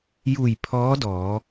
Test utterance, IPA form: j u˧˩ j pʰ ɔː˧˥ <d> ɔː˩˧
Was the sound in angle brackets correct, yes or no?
yes